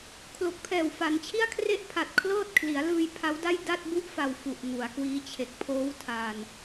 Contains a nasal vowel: no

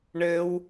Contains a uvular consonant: no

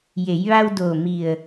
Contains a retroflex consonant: no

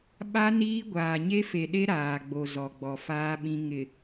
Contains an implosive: yes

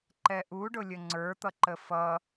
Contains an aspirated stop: no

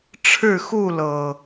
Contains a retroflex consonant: yes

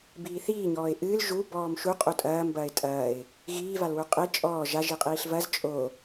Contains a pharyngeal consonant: no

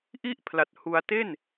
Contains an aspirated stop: yes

